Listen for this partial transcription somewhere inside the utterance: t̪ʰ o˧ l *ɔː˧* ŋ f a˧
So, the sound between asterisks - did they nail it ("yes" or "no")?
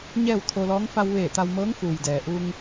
no